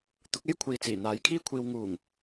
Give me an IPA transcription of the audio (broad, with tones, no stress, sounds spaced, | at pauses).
t̪ ʊ˨˥ k̚ e˥ j kʷʰ iː˨ t͡s iː˨˩ n̪ aː˨˧ j kʰ iː˥ kʷʰ iː˧ w ŋ uː˨˩ ŋ